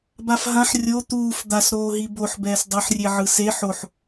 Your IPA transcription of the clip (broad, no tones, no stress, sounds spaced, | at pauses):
b a f ɦ ã ħ rʲ o t̪ uː f d̪ a s ɾ oː ɦ i b o ħ b ɛː s dˤ ɯ ħ rʲ e ʕ ɯ s e ħ o ħ